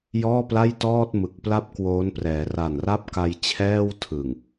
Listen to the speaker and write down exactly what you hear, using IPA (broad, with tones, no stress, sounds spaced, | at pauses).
j ɔː˥˩ p l a˥˩ j t ɔː˥˩ t̚ m ɯ˨˩ k̚ p l a˥˩ p̚ k w oː˦˥ n p r ɛː˩˦ r a˨˩ n r a˥˩ p̚ k a˧ j t͡ɕʰ ɛː˥˩ w tʰ ɯ˨˩ ŋ